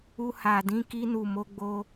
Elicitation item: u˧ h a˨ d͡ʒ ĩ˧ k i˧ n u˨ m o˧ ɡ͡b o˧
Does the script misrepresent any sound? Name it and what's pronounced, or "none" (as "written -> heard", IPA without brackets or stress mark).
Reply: d͡ʒ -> d